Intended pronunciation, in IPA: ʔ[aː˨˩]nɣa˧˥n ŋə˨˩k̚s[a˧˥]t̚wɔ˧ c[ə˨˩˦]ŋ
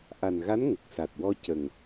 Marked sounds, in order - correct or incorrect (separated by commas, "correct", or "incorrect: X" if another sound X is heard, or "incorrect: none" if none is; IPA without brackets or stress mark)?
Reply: incorrect: a˨˩, incorrect: a˨˩, incorrect: ə˨˩